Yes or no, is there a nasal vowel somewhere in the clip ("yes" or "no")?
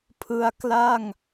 no